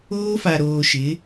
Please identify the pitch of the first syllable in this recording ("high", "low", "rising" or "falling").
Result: high